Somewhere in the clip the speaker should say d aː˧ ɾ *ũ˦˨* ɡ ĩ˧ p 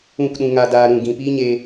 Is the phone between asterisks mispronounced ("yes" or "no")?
no